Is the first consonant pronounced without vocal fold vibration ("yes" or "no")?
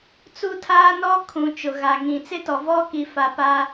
yes